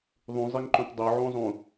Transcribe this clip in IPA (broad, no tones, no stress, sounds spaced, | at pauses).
ðˤ ũ zˤ i ŋ ǃ õ t dˤ o ʕ õ zˤ ũ